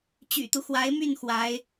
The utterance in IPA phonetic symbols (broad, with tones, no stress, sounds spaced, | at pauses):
t͡ɕ y̰˨˩ t̪ u˦ x w a˧˥ ɪ̯ m y˥˩ n x w a˧˥ ɪ̯